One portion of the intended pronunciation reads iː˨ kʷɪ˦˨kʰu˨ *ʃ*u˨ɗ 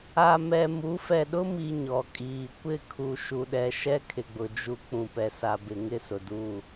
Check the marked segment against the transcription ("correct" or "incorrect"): correct